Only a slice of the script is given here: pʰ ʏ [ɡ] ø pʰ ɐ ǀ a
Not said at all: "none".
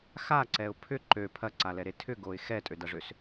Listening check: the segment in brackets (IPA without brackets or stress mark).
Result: ǃ